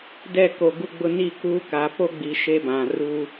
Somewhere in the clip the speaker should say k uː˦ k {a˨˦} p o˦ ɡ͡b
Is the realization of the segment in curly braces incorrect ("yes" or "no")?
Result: no